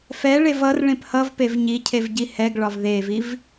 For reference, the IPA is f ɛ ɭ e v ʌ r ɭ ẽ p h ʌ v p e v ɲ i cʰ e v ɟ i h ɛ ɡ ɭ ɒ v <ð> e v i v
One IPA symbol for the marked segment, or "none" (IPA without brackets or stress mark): ð